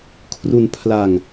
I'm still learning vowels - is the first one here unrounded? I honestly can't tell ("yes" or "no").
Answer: no